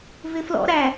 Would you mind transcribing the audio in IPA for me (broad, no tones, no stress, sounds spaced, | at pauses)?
v ɪ f l ɔ̰ ɾ æ